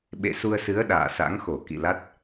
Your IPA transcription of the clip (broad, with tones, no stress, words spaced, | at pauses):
ɓḛ˧˨su˧ə̯sɨ˨˦ə̯ ɗa̰ː˧˨sa̰˧˥ŋxo˧˩ kḭ˧˨la˦˥t̚